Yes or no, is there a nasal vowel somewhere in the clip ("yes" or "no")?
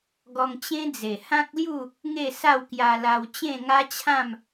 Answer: yes